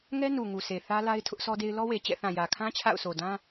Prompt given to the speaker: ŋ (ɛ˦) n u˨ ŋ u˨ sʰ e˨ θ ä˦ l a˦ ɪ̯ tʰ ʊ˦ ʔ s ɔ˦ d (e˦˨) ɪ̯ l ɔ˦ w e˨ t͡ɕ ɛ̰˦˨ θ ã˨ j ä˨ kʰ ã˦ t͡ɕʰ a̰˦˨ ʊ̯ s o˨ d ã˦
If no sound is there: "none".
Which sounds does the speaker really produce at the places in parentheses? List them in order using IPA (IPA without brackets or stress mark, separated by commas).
ɛ˦, e˦